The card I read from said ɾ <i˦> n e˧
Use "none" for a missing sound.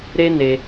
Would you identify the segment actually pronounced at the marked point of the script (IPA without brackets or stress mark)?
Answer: e˦